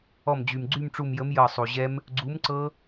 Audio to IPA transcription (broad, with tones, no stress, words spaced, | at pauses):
ɔ˧˩md͡ʑy˩m ɡ͡ǀy˥˧mʈ͡ʂu˧˩mjə˨˥m jɤ˧˩sˤu˩ʑɛ˦˥m | ɡ͡ǀu˨˥mǀɤ˦˥